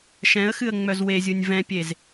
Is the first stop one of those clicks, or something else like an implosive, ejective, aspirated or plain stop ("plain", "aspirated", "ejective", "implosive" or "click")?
plain